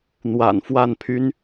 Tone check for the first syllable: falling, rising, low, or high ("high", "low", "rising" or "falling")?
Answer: low